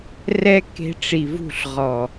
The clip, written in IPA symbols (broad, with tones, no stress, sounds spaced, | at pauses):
r ɛ˦ k e̤˧ ʈ͡ʂ i˨ v ṳ˦˨ ɬ ʁ ɔ˨